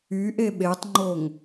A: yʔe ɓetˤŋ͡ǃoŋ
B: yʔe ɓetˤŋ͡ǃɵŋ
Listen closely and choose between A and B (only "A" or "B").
A